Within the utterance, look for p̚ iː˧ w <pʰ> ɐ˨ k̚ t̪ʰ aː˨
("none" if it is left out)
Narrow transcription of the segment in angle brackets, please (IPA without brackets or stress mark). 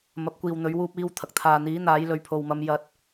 t̪ʰ